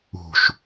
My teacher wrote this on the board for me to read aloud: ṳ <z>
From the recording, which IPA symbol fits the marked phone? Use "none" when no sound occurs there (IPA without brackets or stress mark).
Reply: ʃ